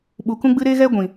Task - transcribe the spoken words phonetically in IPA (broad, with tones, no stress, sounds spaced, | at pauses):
ɓ u˨ k ũ˧ ɡ͡b ɨ˧ ɾ e˦ ɣ ɛ˦ ɡʷ ĩ˨